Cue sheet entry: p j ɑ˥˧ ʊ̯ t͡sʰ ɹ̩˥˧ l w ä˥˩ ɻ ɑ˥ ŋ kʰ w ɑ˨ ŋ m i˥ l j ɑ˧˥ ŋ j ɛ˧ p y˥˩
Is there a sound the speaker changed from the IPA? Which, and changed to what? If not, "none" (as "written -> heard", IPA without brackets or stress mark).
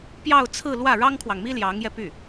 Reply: none